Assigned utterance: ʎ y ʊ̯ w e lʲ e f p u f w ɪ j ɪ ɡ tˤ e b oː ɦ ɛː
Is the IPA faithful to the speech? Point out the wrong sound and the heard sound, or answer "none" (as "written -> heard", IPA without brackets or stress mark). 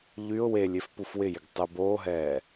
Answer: none